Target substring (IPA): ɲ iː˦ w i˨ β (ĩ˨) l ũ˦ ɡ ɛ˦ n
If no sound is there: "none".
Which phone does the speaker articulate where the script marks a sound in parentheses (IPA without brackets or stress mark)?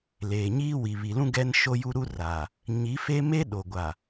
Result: i˨